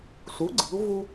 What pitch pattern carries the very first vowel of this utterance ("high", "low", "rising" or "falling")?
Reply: rising